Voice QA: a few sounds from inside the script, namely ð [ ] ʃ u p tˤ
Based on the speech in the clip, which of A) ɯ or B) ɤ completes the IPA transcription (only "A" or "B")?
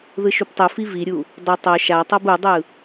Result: A